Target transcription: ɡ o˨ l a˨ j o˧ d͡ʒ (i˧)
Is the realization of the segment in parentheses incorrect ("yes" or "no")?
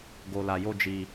no